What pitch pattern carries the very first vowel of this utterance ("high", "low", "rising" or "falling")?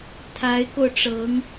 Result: rising